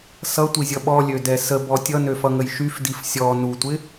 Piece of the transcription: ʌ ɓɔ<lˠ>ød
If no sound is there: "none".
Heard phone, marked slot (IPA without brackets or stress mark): lʲ